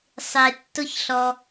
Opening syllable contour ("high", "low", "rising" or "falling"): low